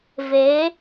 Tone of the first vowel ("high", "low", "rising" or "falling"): rising